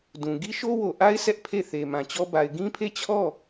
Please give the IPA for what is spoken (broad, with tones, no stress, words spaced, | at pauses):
dũ˨ ɡi˦ʃo˦wo˨ʔa˦ɪ̯ sɛ˦ʔpʰe˦˨ θe˨mã˨t͡ɕɔ˦ ba˨ɪ̯ɡĩ˦pʰe˦˨ t͡ɕʰɔ˦˨